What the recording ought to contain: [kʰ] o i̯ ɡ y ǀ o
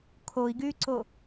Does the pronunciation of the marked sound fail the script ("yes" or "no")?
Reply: no